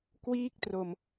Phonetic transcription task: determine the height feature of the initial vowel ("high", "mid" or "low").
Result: high